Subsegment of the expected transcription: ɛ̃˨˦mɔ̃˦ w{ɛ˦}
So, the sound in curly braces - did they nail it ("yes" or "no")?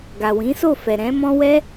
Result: yes